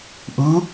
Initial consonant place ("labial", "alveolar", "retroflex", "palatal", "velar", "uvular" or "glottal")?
glottal